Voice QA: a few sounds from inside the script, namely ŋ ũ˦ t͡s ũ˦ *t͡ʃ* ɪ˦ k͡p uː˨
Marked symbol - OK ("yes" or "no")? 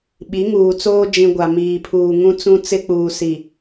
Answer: no